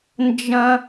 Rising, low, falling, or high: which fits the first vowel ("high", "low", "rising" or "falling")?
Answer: high